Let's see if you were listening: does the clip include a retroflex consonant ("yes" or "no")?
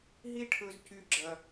yes